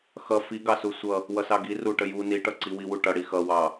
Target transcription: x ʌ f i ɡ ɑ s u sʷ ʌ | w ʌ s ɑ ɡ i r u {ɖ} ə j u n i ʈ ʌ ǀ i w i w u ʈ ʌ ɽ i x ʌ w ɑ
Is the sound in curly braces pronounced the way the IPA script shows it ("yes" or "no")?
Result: no